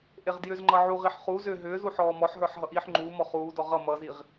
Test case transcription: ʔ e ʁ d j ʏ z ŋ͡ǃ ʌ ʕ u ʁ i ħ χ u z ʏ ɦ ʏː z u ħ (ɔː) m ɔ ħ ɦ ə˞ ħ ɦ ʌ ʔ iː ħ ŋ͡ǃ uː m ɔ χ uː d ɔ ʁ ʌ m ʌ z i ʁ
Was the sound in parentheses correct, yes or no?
yes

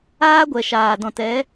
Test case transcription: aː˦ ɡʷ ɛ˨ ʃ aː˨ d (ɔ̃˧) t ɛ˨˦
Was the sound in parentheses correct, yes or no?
no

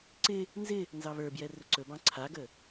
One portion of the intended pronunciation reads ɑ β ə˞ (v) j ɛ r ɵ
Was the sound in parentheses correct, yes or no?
no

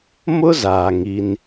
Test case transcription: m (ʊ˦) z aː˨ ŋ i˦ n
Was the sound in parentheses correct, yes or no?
yes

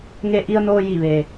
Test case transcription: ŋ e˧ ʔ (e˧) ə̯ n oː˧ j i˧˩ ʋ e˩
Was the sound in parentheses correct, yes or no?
no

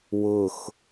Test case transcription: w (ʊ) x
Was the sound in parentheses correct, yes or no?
yes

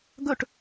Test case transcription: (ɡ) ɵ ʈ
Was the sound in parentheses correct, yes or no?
yes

